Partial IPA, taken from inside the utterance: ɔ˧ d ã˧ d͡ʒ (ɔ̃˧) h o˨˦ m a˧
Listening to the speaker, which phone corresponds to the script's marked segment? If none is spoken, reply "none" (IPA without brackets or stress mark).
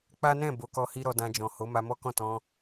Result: ɔ̃˨